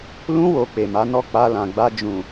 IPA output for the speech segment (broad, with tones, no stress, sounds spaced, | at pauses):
l ũ˧ w o˨ k͡p e˨ m a˨˦ n ɔ˦˨ k͡p a˧ l ã˨ ɡ͡b a˧ d͡ʒ ũ˨